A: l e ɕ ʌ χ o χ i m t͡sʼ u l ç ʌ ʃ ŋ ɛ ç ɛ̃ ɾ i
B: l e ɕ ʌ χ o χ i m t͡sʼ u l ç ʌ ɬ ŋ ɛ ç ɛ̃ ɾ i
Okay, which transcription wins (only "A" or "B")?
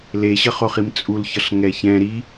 B